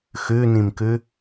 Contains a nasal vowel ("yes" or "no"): yes